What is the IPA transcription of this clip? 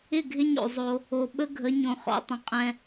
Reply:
ɪ˦˨ɡʱɪ˦ɲo̰˨ zˤo˦ | o˨ ɓə˦ɡʱə˨˦ ɲõ˨χɔ̰˨˦tˤə̃˨ qʼɛ̃˦

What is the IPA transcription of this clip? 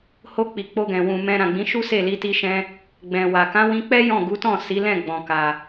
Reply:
ho˧k͡pi˨ k͡po˧ɡɛ̃˨wũ˨mɛ̃˧ ɾã˨ɡ͡bĩ˨˦ʃu˦ se˦˨li˧ti˧ʃɛ̃˧ | ɡ͡bɛ̃˨wa˨ kã˨˦wĩ˧k͡pɛ˦ jɔ̃˦˨ ɡu˨˦tɔ̃˦˨si˨˦lɛ̃˦˨ ɡ͡bɔ̃˨ka˨

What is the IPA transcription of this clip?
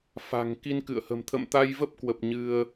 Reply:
fa̤˨˩ŋ ki˧nkɨ̰˧˨ə̯hə̤˨˩m t̪ʰə̰˧˨mt̪a˧jvə˦˥p̚kwə˨˩p̚ ɲɨ˧ə̯

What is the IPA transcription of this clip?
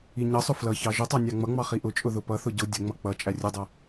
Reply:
iɲʌsˤʊ flʌçɑ ʒʊtˤɑ nʲɑŋ͡mʌŋ͡mɑ χiʔʊt͡ʃʼʊ ðʊpʌθʊ ɟʊ dʲəŋ͡mʌ k͡pʌ t͡ʃʼærʲʊdˤʌ

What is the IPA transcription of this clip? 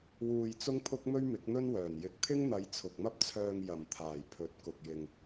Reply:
wuː˧jt͡sʊ˥ŋpʰʊ˥k̚ mɵ˥ɥmɪ˨˥k̚n̪ɵ˥nwœː˨˩n jɪ˨k̚ t̪ʰɪ˥ŋn̪ɐ˨˧j t͡sʰʊ˨k̚mɐ˥p̚t͡sʰœː˧ŋ jɐ˨˩m t̪ʰaː˨˩jpʰɵ˨˥t̚ kʊ˨k̚jɪ˨ŋ

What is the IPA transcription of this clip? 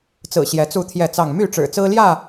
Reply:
t͡sɹ̩˨˩ ɕjɛ˨˦t͡su˥˨t̪ʰjɛ˥˨t͡sɑ˥˨ŋ my˥˨ʈ͡ʂɻ̩˨˩t͡sɹ̩˦ljä˥˨

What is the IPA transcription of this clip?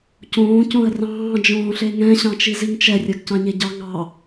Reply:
cõː cõə̯rɑ̃ː d͡ʒõːɬeŋɛ̃ ɕɑ̃t͡ʃiziŋt͡ʃɛ rʲɜɡcɑ̃ɲeɟɑ ŋɑ

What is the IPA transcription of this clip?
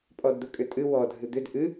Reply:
pʼɔdd̪əkʼʏtʼɨ wɔ dʱɨd̪ʏd ʔɨ

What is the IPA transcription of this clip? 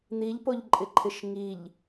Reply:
n̪iʎpoʎǃʼɪǃʰɪʃ ŋiʎ

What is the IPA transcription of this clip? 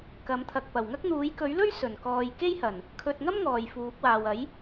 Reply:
kɐ˨˥mt̪ʰɐ˨k̚ pɐ˨˩wŋɐ˥k̚n̪uː˨˥j kɵ˨˥ɥlɵ˥ɥ sɵ˨˩nkɔː˨j ke˥jhɐ˨˩n | kʰɵ˧t̚ ŋɐ˥m ŋɔː˨jfuː˨˥k̚waː˨w ɐ˨˥j

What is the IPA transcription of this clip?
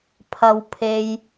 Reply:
pʰɐ˨wpʰe˨j

